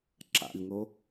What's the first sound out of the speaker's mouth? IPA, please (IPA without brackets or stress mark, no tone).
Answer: ǁ